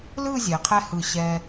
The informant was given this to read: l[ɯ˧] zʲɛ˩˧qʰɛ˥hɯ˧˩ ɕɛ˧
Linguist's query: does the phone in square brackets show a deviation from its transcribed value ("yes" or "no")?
yes